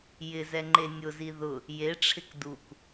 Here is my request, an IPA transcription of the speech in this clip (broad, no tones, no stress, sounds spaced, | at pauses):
j ɪ z ɛ ŋ͡ǃ e nʲ ʊ z i ð ʊ | j e ʈ͡ʂʰ ɪ k d u k